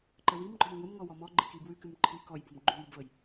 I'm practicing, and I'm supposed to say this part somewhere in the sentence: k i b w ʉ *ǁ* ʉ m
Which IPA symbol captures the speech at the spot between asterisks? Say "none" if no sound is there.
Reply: k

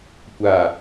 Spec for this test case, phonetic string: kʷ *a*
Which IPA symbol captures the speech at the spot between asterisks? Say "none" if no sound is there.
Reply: a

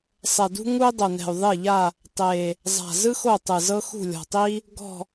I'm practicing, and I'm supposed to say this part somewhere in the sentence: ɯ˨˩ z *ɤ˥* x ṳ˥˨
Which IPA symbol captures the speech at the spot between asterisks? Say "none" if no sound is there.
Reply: ɤ˥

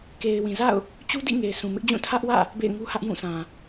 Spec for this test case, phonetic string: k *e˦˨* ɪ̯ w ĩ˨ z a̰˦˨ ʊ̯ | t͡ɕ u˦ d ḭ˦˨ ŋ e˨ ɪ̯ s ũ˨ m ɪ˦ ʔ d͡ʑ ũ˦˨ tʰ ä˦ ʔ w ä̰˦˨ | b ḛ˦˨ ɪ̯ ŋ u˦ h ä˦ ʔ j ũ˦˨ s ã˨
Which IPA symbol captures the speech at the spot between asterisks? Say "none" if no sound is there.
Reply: e˨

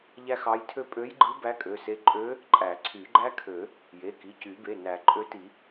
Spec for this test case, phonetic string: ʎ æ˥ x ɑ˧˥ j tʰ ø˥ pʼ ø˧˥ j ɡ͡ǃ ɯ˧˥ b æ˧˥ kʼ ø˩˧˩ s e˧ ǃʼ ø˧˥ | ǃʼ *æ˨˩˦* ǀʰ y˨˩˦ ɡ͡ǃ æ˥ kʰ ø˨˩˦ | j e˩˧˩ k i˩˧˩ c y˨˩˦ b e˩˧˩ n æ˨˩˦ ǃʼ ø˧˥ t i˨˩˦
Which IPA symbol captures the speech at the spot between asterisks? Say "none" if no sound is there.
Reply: æ˨˩˦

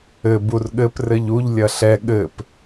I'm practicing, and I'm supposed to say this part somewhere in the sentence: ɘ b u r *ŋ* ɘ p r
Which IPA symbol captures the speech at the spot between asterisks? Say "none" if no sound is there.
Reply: ɠ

